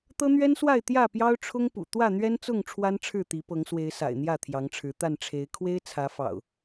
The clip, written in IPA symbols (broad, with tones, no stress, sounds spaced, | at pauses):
t̪ ɤ˦ n̪ ɥ ɛ˦ n s w a˥˨ ɪ̯ t̪ j ä˥˨ p j ɑ˦ ʊ̯ ʈ͡ʂʰ ʊ˦ ŋ p ṵ˨˩ t̪ w ä˥˨ n̪ ɥ ɛ˦ n t͡s ʊ˥˨ ŋ ʈ͡ʂʰ w a˦ n ʈ͡ʂʰ ɻ̩˥˨ t̪ i˨˦ p ɤ˨˦ ŋ s w e˨˦ ɪ̯ s a̰˨˩ ɪ̯ n̪ j ä˥˨ t̪ʰ j ɑ˨˦ ŋ ʈ͡ʂʰ ɻ̩˨˦ t̪ a˥˨ n ʈ͡ʂʰ e˨˦ ɪ̯ kʰ w e˦ ɪ̯ t͡sʰ ä˨˦ f ɑ̰˨˩ ʊ̯